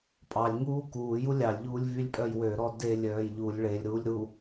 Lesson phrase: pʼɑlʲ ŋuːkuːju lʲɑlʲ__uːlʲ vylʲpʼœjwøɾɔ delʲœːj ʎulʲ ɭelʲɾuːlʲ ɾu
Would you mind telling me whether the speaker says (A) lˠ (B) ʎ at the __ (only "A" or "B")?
B